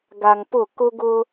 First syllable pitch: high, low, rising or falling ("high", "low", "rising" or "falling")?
low